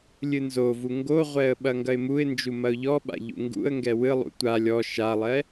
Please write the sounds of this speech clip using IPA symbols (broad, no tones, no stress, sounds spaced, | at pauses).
lʲ ɨ n z o v u ŋ ɡ o ʁʷ ɛ ə̯ ɓ ɐ ŋ ɡ ɐ ɪ̯ m u ɪ̯ n d͡ʒ u m ɐ ʊ̯ ʎ ɔ ɓ a̰ ʎ ṵ ŋ ɡ ṵ ə̯ ŋ ɡ ɛ w ɨ lˠ ṵ tʷ a lʲ ɔ ʃ a lˠ ɛ